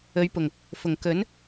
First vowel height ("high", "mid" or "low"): mid